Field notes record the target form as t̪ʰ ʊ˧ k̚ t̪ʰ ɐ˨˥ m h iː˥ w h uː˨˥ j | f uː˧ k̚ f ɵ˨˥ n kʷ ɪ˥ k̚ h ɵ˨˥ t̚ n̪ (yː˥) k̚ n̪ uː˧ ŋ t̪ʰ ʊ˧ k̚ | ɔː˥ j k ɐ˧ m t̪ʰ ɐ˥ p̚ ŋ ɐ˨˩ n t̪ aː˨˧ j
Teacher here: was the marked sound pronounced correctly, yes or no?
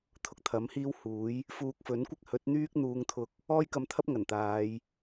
yes